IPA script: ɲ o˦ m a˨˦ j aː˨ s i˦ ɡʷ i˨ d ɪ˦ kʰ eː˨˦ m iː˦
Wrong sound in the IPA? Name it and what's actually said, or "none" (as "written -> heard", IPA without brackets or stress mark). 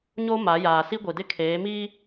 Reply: none